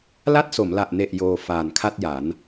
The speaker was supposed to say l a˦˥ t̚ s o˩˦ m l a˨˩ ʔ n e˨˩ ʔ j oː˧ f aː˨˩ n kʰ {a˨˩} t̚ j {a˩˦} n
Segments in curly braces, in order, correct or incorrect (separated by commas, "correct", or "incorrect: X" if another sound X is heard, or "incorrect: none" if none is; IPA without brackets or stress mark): incorrect: a˥˩, correct